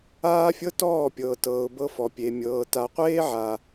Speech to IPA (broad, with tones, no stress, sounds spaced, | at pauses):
aː˦ fʲ ɤ˦ t ɔː˦˨ pʲ ɤː˨ t ɤː˨ ʊ̯ b ɤ˧ f ɔ˨ pʲ e˨ mʲ ɤː˨ t a˨ qʷ eː˦ ʕ a˨